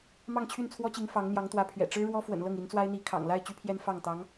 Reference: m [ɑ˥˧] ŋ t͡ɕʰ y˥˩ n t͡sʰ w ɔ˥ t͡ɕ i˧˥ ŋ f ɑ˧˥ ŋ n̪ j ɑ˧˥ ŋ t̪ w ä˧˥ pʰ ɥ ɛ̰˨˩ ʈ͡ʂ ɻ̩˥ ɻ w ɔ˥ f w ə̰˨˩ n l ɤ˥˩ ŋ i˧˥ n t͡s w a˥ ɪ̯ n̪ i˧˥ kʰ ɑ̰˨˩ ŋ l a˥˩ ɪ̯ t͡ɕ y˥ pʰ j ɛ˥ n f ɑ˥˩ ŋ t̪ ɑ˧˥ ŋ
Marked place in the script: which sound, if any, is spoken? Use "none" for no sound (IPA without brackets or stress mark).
ɑ˥˧